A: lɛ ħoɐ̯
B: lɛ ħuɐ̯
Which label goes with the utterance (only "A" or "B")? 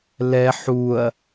B